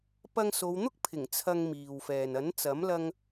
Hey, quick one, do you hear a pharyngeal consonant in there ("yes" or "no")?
no